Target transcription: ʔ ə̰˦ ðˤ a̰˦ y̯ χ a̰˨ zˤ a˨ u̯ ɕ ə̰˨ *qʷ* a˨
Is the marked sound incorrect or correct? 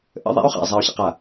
incorrect